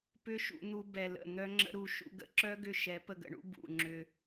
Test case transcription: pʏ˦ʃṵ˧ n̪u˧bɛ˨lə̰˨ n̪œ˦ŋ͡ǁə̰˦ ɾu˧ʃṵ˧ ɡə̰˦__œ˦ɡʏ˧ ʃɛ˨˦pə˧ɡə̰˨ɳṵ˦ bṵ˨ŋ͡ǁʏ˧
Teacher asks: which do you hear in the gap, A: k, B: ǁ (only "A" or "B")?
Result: B